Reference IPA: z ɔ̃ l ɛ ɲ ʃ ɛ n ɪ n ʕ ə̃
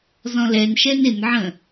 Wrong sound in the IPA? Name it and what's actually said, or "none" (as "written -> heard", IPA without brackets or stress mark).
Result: ɲ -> n